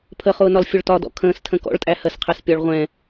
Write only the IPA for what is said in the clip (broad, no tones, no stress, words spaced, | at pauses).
pʰəχʊːnɒl fʲʊɭtɒ dɔ̰kʰə̃ːstʰə̃ kɔ̰ɭtʼæhɜsqʰɛs pʲɒɭʁʷɛ̃